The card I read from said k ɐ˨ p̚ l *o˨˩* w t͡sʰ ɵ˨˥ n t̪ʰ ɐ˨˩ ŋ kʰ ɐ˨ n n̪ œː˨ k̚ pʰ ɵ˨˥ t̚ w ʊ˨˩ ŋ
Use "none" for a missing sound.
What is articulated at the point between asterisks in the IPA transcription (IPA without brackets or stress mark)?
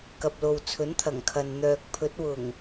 o˨